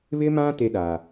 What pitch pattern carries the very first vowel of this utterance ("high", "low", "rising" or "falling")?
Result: high